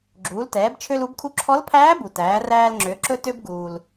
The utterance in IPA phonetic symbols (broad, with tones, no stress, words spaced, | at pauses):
ɡ͡ǁuː˩˧ltɛː˩˧bt͡ʃʰø˧l u˩˧bkʰu˧ǁʰɔ˧˥lpʰæː˧˥ bu˩tæː˩˧ræː˧l ŋ͡ǁø˩˧ǁɵ˧ tø˧bɡuː˩l